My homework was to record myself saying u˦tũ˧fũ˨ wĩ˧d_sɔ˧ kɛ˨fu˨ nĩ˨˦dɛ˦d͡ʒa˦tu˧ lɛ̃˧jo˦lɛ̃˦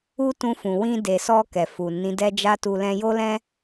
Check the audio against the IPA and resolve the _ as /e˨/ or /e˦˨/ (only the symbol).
e˨